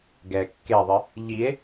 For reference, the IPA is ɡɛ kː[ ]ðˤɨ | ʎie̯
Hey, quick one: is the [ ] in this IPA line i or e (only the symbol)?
e